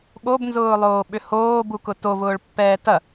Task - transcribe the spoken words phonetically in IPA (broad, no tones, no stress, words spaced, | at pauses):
ɠobnzʊːlˠoːɓʏ hoːbukʊ tovʊːɭpːɛː tɐ